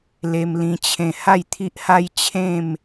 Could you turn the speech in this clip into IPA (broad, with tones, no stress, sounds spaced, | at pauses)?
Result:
l e˧ m l ĩ˧ t͡ɕʰ ẽ˧ h a˥˧ j t̪ʰ i˦ ʔ h a˦ j t͡ɕʰ ẽ˥˧ m